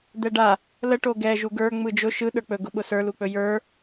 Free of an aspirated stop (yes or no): yes